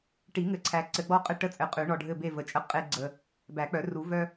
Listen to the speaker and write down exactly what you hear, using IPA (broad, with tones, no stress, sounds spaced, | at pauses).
ʈ i˨˩˦ ŋ ɘ˨˩˦ ǀʰ æ˨ ǀ ɘ˨˩˦ ɡ͡b ɔ˦ qʼ ɘ˦ ʈ ə˦˨ t͡sʼ ɘ˨ qʼ ʉ˨˩˦ ɳ ɔ˨ ɖʱ ɘ˦˨ b e˦˨ v ə˨ t͡ʃʼ ə˦ qʼ e˦ ɡ͡ǀ ə˨ | b æ˨˩˦ k͡p œ˨˩˦ r u˨˩˦ v œ˦